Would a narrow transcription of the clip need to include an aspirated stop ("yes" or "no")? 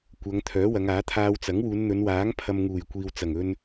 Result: yes